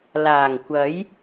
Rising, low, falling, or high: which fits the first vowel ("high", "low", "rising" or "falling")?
low